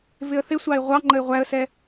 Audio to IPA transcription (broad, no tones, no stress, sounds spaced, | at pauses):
v ɪ ə̯ θ ɪ sʷ ɑ ɪ̯ ʁʷ ɑ ŋ͡ǃ ə ɪ̯ ʁʷ æ ə̯ s ɛ